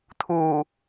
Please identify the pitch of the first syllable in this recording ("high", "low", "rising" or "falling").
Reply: low